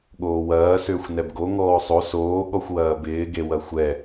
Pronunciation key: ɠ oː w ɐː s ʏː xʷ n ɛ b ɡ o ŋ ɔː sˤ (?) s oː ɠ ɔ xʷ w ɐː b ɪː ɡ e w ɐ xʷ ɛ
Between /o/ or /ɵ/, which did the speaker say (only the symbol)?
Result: o